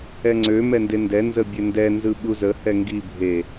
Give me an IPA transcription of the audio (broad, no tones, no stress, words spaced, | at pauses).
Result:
ɛŋ͡ǀø mɛndendɛ nzəbʲøndɛ nzɯɓuzə hɛŋɡi bʱe